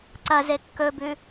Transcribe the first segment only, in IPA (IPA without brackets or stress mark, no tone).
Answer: ǀ